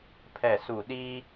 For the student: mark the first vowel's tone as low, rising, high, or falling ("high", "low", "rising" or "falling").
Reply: falling